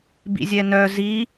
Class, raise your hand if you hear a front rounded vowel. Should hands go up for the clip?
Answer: yes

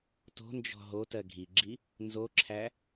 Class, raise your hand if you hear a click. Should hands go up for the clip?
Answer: yes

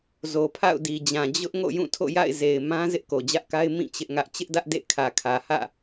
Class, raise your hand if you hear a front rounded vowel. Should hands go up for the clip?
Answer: no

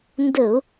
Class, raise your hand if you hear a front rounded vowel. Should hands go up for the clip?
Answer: no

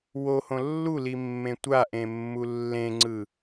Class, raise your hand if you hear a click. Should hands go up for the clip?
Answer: yes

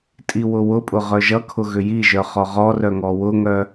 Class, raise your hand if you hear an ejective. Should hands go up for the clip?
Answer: yes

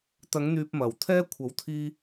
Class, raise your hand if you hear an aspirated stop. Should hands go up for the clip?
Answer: yes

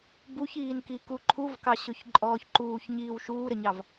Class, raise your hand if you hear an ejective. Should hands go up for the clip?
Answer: yes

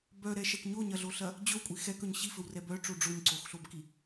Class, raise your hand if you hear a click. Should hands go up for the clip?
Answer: yes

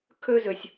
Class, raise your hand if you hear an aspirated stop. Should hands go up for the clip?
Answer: yes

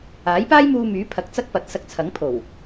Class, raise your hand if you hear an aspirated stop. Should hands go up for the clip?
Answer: yes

